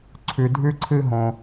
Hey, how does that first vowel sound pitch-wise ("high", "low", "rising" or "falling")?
low